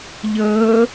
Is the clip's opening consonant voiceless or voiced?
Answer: voiced